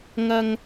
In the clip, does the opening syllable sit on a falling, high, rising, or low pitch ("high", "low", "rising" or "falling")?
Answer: low